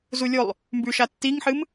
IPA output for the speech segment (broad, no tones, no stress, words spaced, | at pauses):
zulʲolˠ | mbʉʃa tːiŋħɨm